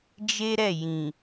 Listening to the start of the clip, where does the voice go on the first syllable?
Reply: high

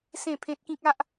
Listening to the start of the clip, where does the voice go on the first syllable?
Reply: falling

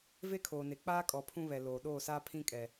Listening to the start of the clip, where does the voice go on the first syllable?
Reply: high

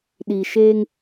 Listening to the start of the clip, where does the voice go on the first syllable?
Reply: low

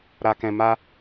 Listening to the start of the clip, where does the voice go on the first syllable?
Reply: low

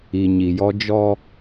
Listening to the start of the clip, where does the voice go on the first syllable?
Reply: low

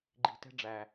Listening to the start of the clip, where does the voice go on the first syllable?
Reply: low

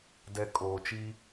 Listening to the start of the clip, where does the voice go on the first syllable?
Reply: low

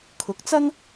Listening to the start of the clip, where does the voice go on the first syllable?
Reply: rising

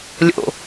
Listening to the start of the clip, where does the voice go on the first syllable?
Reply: low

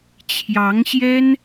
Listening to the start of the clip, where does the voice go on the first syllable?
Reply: rising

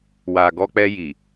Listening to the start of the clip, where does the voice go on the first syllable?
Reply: low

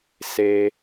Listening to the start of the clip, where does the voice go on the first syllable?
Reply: high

